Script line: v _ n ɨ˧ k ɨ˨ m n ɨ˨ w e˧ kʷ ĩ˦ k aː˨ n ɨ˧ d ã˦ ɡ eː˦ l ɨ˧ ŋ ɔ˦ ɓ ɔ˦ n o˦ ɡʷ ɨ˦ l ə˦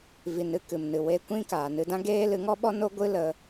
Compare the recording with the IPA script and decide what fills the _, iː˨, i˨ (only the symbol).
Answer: i˨